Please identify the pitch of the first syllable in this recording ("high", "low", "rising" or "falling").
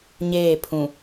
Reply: falling